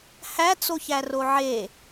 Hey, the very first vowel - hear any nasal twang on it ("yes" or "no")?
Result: no